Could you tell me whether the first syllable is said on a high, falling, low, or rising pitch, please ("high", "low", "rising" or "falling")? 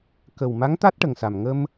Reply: low